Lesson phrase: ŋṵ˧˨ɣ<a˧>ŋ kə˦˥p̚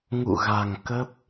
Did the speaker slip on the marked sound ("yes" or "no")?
yes